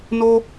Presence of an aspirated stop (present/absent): absent